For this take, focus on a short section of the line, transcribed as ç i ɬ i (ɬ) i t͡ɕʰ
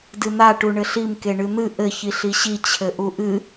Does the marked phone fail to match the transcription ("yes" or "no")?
yes